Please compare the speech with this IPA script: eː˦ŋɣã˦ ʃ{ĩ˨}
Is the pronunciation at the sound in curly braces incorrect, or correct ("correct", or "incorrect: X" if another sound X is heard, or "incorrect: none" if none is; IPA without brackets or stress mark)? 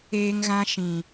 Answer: correct